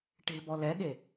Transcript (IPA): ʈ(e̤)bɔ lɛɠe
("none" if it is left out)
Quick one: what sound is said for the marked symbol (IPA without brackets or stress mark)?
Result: e̤